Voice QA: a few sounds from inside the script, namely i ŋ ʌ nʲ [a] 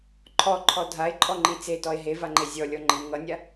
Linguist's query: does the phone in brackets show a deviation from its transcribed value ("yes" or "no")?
no